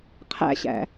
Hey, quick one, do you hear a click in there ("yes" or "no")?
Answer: no